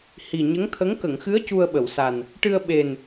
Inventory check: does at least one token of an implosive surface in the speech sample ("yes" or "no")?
yes